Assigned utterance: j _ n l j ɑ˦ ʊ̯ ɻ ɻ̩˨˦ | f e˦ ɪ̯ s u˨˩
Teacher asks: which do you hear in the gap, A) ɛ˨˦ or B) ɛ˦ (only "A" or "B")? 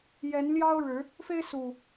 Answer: A